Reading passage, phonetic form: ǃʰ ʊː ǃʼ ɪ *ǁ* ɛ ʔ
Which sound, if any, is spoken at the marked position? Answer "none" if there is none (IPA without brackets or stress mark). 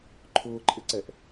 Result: ǀ